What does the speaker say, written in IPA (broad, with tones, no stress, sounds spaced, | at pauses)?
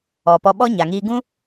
ɔ˨ p ɔ˧ ɓ ɔ˦ ɲ a˨ ŋ iː˧ ɡ ũ˦